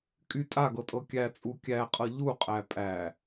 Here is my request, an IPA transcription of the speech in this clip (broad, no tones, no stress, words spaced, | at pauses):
kʼy tʼaɡɤtʼɤ kʲæt͡sʼu kʲæqʼɤ ʎuqʼæ pʼæ